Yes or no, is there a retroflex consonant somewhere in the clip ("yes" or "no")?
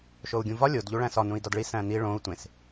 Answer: yes